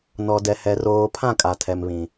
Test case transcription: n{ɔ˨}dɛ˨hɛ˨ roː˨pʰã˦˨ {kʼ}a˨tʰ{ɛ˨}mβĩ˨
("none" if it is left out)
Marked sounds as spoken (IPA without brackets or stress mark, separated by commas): ɔ˨, kʼ, ɛ˨